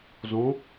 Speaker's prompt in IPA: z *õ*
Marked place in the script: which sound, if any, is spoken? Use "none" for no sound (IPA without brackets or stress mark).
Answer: õ